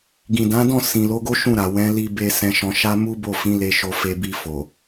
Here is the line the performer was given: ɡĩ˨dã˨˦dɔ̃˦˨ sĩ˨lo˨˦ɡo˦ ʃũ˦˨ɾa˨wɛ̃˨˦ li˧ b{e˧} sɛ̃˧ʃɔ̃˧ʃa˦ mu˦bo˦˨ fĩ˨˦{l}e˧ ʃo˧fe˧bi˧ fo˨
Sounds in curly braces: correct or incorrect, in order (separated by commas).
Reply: correct, correct